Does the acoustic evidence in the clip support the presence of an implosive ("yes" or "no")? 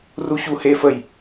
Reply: no